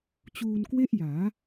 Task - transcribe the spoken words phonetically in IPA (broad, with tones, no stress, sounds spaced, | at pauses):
t͡ɕ uː˧ n k w e˥˩ ʔ j aː˩˦